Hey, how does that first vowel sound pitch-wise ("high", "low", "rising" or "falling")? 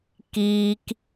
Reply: high